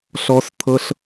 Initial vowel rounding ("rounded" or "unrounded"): rounded